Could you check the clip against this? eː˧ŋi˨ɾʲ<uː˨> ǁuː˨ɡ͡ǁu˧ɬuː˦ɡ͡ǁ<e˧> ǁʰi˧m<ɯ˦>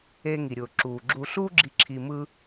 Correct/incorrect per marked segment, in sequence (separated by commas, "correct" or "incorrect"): incorrect, incorrect, correct